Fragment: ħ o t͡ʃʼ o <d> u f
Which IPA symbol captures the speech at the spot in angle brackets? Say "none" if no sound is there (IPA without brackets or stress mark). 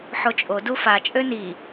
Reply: d